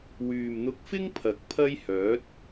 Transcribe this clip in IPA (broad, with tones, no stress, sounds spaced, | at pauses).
w yː˨ m n̪ ʊ˧ k̚ f ɪ˥ ŋ pʰ ɐ˨˥ k̚ pʰ ɐ˥ j h œː˨˥ t̚